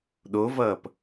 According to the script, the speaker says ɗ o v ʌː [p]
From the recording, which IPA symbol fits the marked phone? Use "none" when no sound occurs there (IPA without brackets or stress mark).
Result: p